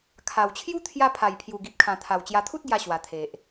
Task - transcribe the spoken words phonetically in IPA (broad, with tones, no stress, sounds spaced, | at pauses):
kʰ a˨˩ w t͡ɕʰ j u˦ t̪ʰ j a˧ pʰ a˨˩ j pʰ j u˨˩ ɡ i˨ p̚ kʰ ã˨˩ t̪ʰ a˨˩ w t͡ɕ j a˧ t̪ʰ u˦ t̚ ɡ j a˧ ɕ w a˨˩ t̪ʰ e˨ ʔ